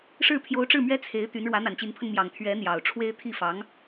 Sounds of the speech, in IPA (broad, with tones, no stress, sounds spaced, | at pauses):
ʂ ɻ̩˥˩ pʰ j o˧˥ ʊ̯ ʈ͡ʂ ɻ̩˥˩ m ɥ ɛ˥ t͡sʰ e˧˥ ɪ̯ t̪ y˧˥ n ɻ w ä˧˥ n̪ a˨˩ n t͡ɕ i˧˥ n pʰ ə˧ n m j ɑ˨˩ ŋ t̪ʰ ɥ ɛ˧˥ n̪ j ɑ˨˩ ʊ̯ ʈ͡ʂʰ w e˥ ɪ̯ t̪ʰ i˥˩ f ɑ˧˥ ŋ